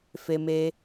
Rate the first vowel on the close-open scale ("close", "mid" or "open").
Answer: mid